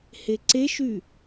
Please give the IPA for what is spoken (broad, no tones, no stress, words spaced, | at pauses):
heǀeʃy